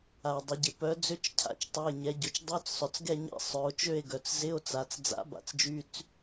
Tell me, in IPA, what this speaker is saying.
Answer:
a˩ e̯ dˤ ɪ˩˧ ɟ ɪ˩ p œ˨˥ d͡z ʏ˧˥˧ t͡ʃ cʰ a̰˨˥ t͡ʃ tˤ ɛ˩˧˩ e̯ ɲ ɛ˩˧ ɟ ʊ˩˧ t͡ʃ dˤ œ˧˥˧ t͡s sˤ œ˩ t͡s ɡ ɛ˦˨ ɲ ɛ̰˧˥˧ sˤ œ˩˧ o̯ t͡ʃ ø˦˨ e̯ ɡ œ˩ t͡s z ɪ˧˥˧ o̯ t͡s a˩˧ t͡s d͡z a̰˨˥ b a̰˨˥ t͡s d͡ʒ y˧˥˧ t͡s

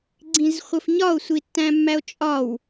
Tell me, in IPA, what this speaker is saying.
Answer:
ɡ͡ǀ ĩ z χʷ ə f ɲ ɒ o̯ sʷ i tː æ̃ mː æ o̯ t͡ʃʼ ɒ w

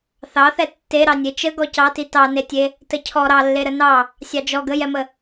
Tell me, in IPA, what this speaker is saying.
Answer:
θ ɑ θ ɛ tː e ɾ ɑ nʲ e t͡ʃ ə ɡ ɔ c ɑ t i t ɑ n e tʲ e | t ə cʰ ɔ ɾ ɑ lː e ɾ ə n ɑ | sʲ ɑ d͡ʒ ɔ ɡ ə j ɛ m ə

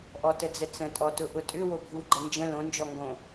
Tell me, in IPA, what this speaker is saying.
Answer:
ʔ ɔ t ə d͡z ə t͡s ə̃ tʼ ɔ t ʊ ʔ ʊ tʼ ʏ w o bʱ u ɡ͡ǃ ə n d͡ʒ ə̃ l õ n d͡ʒ ɔ ŋ ɡ õ

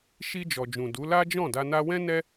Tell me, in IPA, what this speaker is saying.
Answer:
ʃ i˧ d͡ʒ ɔ˨ d͡ʒ ũ˨ d u˨˦ l a˦ d͡ʒ ɔ̃˦˨ d a˧ n a˧ w ɛ̃˦ n ɛ˦

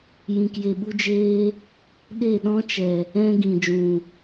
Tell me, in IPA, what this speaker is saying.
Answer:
j ĩ˨ k j e˨ ɓ u˧ d͡ʒ eː˧ | ɗ e˦˨ ɗ ɔ̃˦ t͡ʃ ɛ˨ | ɛ̃˦ ɡ ĩ˨ d͡ʒ ũ˨

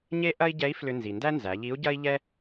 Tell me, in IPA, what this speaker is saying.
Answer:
ɲ e˥ ʔ ɐ˥ i̯ ɟ ɛ˧˥ i̯ f l ʏ˧ n z i˩ n d æ˥ n z æ˩˧ ʎ i˧˥ u̯ ɟ ɐ˥ i̯ ʎ ɛ˥

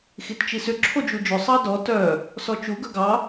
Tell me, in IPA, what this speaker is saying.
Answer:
x i t t͡ʃ i s ʏ ǁʰ o d͡ʒ u d͡ʒ ʏ sˤ ɑ d ɔ t œ | s ɔ t͡ʃ u ɡ œ ɡ ɑ

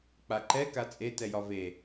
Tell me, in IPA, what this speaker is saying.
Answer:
k͡p a ǃ ɛ k a t͡sʼ e t ɛ j ɒ v e

